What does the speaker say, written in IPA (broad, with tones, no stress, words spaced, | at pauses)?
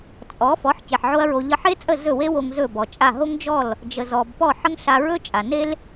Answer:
t͡sʼɔ˩˥fɔ˩˥ħ ce˩ħʕo˥ɐ̯ɹo˧ ʎə˧ħe˥t͡sʼə˥˩ zɵ˥˩we˥wo˧ŋ zɵ˥˩bɔ˩t͡ʃʼa˥˩ ɦo˥ŋd͡ʒɔ˥˩l | d͡ʒə˩zɔ˩b pɔ˥˩ħə˥ŋɬa˧ ɹɵ˥t͡ʃʼa˩ne˥l